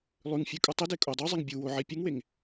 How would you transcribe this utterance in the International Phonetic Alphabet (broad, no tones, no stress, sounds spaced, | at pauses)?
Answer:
lˠ ʉ ŋ fʲ ʉ kʼ u tˤ i d e kʼ o dˤ u zˤ e ŋ bʲ u w o ʕ i pʲ ʉ ŋ w e ŋ